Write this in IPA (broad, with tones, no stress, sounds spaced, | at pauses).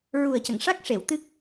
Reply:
ɹ u˨˩ ə̯ c ə˨˩˨ ŋ ʂ a˦˥ k̚ ʂ e˨˩˨ w t̪ ɨ˦˥ k̚